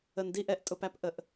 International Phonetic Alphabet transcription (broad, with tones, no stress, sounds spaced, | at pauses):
ə˨ n d i˦ ʔ ɛ˨ ʔ tʼ ʊ˨ p æ˦ p ʔ ə˨ ʔ